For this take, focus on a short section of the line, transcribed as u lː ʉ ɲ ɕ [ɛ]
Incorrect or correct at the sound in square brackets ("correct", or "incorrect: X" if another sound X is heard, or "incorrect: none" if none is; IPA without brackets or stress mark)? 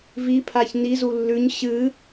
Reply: incorrect: ɨ